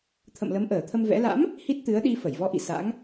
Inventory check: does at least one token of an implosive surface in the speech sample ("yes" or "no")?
yes